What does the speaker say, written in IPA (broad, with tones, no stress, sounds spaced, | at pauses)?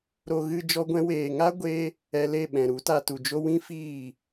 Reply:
ɾ o˧ ɣ ɨ˧ d͡ʒ ɔ˧ ɡʷ ɛ̃˧ w eː˨ ŋ a˦ ɡʷ e˧ | ɛ˧ l e˦˨ ɓ ɛ̃˨ ɾ u˨˦ t a˧ t u˨ d͡ʒ o˦ w ĩ˦ f iː˦˨